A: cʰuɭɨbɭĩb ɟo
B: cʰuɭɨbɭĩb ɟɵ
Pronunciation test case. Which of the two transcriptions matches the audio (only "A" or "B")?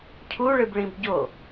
A